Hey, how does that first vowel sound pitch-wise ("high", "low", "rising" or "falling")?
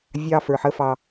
high